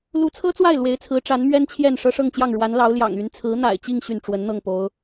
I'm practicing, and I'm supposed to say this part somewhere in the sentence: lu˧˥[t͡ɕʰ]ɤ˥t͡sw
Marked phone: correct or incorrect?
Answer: incorrect